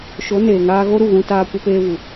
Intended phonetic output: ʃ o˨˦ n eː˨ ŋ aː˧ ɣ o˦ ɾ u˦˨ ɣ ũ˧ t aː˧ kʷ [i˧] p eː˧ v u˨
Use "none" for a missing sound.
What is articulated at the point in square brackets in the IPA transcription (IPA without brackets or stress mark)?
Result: i˧